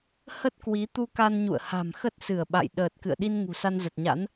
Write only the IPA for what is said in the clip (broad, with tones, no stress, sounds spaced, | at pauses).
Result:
h ə˦˥ t̚ k w i˨˦ t̪ u˧ k a˧ n ɲ ṵ˧˨ ə̯ h a̤˨˩ m x ə˦˥ t̚ s ɨ˧˩ ə̯ ɓ a̰˧˨ j ɗ əː˨˩ t̚ k ɨ̰˧˨ ə̯ ɗ i˧ n ŋ ṳ˨˩ s a˧ n z ə˨˩ t̚ ɲ a̰˧˥ n